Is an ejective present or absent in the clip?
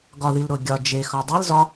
absent